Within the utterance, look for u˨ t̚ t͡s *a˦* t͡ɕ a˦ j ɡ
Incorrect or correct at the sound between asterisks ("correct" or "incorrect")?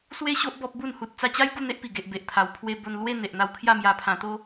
incorrect